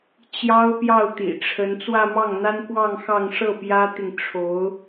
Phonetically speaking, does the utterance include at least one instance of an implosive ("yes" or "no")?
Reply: no